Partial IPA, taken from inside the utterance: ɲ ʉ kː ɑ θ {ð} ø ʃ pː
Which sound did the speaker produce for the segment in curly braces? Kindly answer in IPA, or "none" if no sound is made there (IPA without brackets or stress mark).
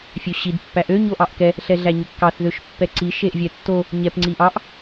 ð